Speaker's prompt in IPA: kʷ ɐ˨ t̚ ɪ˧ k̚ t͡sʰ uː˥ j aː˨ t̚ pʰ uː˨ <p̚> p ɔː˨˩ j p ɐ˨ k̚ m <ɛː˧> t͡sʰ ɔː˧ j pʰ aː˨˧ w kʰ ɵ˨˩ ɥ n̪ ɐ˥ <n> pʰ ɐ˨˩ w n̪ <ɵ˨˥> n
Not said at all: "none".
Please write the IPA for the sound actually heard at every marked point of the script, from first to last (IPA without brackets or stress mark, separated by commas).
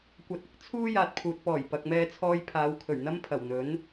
t̚, ɛː˧, m, ɵ˨˥